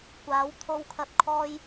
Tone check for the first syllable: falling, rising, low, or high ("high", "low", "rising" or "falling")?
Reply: rising